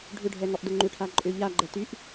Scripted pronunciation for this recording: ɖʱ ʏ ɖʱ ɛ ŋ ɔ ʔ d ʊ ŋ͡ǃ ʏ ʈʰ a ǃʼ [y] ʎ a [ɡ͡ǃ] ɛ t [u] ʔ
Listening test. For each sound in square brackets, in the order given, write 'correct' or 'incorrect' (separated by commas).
incorrect, correct, incorrect